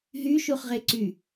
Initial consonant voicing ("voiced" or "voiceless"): voiced